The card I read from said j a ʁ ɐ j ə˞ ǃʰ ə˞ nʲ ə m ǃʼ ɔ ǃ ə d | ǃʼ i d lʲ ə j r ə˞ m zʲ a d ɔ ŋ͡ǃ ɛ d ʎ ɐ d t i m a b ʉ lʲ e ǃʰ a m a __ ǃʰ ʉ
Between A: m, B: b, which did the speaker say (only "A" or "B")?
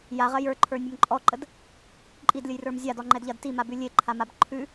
B